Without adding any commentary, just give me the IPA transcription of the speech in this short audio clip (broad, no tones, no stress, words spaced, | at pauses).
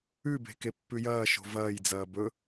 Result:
ʉbe̤ kepːʉjɐːʃo̤ vɐːjd͡zɐː bɵ